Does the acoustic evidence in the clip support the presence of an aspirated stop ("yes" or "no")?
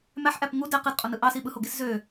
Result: no